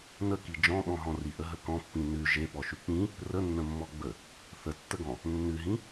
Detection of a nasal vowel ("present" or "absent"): present